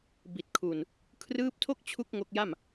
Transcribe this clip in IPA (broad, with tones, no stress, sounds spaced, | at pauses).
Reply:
b i˨˩ t̚ kʰ u˨˩ n | kʰ r ɯː˦˥ p̚ tʰ o˥˩ k̚ t͡ɕʰ u˦˥ k̚ ŋ o˦˥ k̚ j a˥˩ m